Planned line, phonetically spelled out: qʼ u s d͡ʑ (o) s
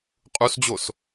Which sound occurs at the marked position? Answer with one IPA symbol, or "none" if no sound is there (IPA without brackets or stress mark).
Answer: o